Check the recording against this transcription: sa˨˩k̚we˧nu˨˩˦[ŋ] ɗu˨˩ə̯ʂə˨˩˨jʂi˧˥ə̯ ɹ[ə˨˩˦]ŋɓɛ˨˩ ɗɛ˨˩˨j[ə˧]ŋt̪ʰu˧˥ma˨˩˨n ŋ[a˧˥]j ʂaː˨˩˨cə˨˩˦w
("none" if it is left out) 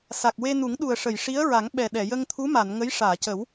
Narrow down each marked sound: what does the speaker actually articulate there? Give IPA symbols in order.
ŋ, a˨˩˦, ə˧, ə˧˥

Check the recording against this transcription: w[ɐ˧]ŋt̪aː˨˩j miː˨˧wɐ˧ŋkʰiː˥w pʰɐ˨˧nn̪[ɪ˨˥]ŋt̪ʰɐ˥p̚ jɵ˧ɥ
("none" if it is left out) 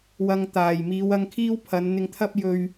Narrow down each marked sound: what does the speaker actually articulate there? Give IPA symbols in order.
ɐ˧, ɪ˧

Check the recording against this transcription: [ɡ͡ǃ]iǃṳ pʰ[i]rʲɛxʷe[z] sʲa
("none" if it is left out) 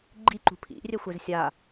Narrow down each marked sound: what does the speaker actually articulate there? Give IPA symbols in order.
ɡ͡ǃ, ḭ, z

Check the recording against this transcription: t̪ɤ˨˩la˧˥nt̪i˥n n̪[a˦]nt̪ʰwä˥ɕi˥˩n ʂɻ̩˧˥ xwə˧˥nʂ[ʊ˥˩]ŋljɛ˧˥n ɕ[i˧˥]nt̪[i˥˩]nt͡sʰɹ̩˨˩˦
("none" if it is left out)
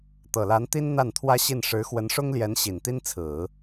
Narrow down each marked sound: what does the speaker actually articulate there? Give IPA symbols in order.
a˥˩, ʊ˥, i˨˩, i˥

